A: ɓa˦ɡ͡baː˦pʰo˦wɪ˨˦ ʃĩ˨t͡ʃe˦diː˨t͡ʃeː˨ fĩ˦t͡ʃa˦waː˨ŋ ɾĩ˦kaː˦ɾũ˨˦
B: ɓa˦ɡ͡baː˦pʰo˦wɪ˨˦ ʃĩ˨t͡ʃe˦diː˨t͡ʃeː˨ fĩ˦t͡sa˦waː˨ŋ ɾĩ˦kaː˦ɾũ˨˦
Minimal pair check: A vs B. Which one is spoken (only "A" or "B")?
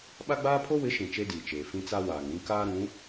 B